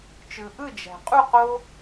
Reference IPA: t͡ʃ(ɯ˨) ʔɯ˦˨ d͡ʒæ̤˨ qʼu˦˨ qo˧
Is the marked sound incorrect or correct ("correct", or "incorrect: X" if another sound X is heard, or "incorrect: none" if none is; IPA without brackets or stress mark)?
correct